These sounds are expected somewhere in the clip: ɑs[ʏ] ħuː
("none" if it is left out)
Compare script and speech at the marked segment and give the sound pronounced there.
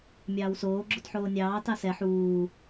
ɛ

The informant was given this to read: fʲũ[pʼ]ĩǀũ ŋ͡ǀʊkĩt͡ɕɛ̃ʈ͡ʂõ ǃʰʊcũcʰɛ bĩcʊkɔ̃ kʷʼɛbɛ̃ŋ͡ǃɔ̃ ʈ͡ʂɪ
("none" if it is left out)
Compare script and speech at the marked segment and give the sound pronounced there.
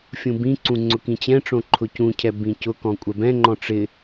b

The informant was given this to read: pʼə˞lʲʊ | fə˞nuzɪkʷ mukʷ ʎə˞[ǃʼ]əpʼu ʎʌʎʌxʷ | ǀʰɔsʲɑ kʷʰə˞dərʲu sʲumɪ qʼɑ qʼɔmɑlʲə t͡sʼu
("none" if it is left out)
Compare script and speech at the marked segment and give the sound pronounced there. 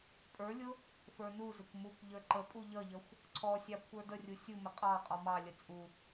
ǃ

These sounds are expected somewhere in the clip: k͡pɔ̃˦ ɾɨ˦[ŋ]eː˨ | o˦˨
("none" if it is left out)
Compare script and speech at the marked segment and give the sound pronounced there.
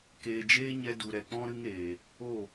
ŋ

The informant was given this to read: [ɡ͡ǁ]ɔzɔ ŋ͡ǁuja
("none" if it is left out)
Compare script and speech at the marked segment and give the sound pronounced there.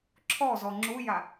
ǁʰ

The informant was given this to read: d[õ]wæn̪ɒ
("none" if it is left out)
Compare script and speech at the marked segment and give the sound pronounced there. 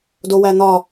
o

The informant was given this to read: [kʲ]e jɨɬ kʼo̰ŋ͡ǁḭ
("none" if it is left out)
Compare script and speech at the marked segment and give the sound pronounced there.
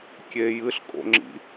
kʲ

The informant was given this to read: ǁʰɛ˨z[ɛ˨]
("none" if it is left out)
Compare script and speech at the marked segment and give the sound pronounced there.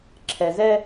ɛ˦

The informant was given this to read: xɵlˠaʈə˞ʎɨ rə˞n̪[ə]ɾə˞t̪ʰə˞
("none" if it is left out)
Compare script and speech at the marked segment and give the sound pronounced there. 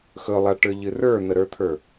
ə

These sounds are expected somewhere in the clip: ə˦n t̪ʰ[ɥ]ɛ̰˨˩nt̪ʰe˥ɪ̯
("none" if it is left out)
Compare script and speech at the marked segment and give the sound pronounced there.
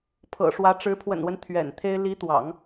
ɥ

